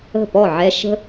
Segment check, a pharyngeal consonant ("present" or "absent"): present